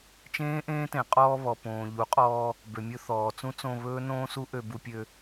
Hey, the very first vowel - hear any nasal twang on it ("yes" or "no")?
yes